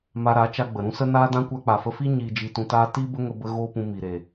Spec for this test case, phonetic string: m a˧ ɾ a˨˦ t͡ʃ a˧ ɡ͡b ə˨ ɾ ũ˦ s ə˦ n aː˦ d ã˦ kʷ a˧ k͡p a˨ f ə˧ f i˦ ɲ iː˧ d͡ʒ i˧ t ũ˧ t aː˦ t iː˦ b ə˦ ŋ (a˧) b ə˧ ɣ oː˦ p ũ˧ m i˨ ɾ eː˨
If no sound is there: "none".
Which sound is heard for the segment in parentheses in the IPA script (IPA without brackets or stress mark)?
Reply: ə˧